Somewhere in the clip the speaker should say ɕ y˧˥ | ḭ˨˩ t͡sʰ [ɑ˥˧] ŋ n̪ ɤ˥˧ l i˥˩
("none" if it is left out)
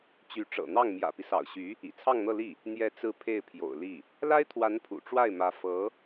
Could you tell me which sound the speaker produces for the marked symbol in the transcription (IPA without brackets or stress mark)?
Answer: ɑ˥˧